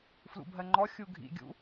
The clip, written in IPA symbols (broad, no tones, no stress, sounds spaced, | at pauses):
f l ṵ bʱ ɜ ŋ͡ǃ ɔ xʲ u ɡʱ ḭ ɡʲ ṵ